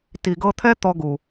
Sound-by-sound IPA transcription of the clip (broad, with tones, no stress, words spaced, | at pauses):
ti˨ɡɤ˧t̪ʰɛ˦ t̪ɔ˧ɡu˨